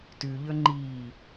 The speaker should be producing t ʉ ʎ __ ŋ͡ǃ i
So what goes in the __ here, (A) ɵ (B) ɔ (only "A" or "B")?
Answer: A